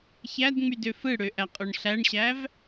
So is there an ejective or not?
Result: yes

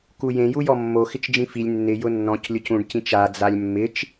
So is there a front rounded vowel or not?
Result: no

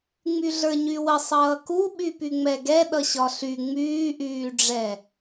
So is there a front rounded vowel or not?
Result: yes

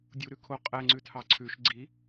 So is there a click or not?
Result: yes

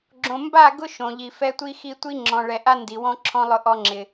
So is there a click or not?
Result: yes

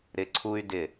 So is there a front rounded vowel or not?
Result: yes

